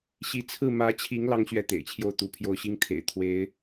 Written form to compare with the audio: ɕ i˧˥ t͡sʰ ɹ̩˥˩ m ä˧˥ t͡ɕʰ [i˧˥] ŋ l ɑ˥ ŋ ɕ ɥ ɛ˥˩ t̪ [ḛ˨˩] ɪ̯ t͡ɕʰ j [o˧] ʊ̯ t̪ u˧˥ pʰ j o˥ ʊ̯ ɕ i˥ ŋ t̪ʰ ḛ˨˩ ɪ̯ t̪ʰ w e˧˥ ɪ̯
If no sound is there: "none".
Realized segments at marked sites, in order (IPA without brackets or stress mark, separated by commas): i˧˥, ḛ˨˩, o˥˩